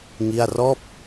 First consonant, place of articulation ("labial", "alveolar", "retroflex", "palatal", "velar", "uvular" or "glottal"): velar